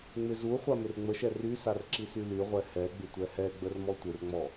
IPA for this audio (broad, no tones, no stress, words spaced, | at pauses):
ŋ͡mɪzuχʷa mɪrŋ͡məʃɛ rysar ǁisylyʁʷɛ hɛ ɡ͡bɪtʷɛhɛɡ͡bər mɔtʷɪrŋ͡mɔ